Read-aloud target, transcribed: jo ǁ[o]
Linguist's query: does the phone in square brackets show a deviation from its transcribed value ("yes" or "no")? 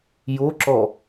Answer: yes